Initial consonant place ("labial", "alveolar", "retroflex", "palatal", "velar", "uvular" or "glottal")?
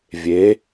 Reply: labial